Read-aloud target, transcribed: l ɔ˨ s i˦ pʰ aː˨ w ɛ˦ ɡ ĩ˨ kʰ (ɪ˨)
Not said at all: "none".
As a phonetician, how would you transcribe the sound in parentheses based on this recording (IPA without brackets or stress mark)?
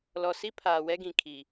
i˨